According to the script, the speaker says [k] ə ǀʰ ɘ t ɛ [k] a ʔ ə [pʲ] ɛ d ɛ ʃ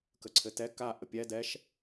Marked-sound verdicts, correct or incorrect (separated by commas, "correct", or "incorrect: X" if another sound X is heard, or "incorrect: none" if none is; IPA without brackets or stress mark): correct, correct, correct